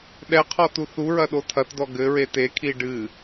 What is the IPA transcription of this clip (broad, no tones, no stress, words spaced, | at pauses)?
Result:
ɗɛqʰɔ tuθuɹɐ ɗotʰɐtdɔ ɡɘɹe tekʰi ɖɨ